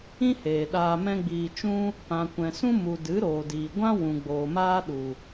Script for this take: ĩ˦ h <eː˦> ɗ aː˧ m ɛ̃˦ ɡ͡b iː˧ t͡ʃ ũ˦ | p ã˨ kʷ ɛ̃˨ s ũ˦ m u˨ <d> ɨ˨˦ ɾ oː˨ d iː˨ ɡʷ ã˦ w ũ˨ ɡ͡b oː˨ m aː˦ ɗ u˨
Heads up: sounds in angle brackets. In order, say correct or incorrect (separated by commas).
incorrect, correct